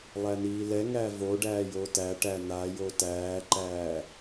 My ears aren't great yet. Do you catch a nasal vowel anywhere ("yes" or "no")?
no